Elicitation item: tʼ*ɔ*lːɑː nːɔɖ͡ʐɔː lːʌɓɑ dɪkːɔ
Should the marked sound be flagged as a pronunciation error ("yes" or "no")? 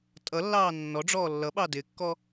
yes